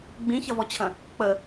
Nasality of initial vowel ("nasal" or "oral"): nasal